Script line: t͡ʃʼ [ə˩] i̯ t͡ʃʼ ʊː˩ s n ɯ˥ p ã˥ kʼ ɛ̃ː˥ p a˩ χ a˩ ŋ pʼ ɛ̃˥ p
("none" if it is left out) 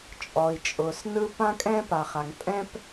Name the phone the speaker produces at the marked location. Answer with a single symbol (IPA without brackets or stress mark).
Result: ɔ˩